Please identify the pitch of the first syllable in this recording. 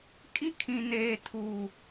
high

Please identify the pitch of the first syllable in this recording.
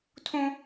high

